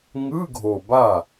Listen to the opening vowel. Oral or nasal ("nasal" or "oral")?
oral